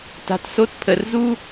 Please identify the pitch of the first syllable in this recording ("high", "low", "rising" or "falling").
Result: low